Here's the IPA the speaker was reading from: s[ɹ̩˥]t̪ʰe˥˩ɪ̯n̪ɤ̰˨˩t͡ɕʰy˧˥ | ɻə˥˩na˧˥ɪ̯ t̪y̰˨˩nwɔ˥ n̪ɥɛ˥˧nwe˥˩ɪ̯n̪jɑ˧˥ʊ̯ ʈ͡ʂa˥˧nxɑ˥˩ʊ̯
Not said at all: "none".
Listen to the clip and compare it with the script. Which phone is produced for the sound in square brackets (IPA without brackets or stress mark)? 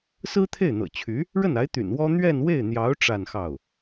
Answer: ɹ̩˥